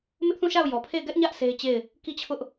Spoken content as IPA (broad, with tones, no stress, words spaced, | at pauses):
mɪ˦ʔθũ˦˨ʃa˦˨ʊ̯ jɔ˨pʰe˦˨ɪ̯ ɡɛ˦ʔɲä˦ʔ se˦ɪ̯ t͡ɕe˦˨ɪ̯ | ki˦˨t͡ɕʰʊ˦ʔ